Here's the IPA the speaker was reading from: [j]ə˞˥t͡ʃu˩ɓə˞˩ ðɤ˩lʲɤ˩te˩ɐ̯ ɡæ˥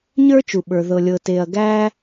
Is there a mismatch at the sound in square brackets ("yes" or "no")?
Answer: yes